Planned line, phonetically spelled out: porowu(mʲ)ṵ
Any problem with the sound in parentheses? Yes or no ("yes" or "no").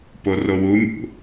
no